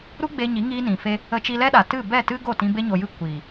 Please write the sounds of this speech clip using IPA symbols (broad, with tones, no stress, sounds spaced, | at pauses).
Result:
ɾ u˦ ɡ͡b e˧ ɲ i˨˦ ŋ iː˧ n ĩ˨ f e˧ | ə˧ t͡ʃ i˧ l ɛ˦ ɗ a˨ t ɨ˦˨ b ɛ˦˨ t ɨ˦ ɡ o˦˨ t ĩ˧ b e˧ ɲ o˨ j ɨ˧ kʷ iː˨